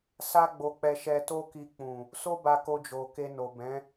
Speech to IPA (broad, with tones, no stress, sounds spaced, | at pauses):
s a˦ ɡ͡b o˧ k͡p ɛ˧ ʃ ɛ˧ t o˦ k i˧ k͡p ũ˨ | s o˦ b a˧ k o˧ d͡ʒ o˨ k e˧ n o˨ b ɛ̃˨˦